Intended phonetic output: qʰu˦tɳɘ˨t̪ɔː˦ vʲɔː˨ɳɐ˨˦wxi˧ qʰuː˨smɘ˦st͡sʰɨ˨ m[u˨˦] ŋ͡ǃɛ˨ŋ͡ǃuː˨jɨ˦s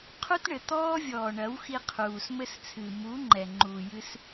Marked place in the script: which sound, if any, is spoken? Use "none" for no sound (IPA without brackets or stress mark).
u˨˦